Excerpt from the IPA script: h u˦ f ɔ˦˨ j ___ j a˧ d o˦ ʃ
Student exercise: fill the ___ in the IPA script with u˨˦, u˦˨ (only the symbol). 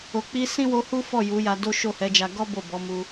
u˨˦